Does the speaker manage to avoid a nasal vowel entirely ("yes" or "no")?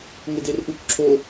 yes